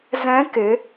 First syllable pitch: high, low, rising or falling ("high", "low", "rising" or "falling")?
rising